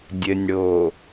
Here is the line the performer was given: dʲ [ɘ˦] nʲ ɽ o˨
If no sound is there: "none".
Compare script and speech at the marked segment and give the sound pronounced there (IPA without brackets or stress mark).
ɘ˨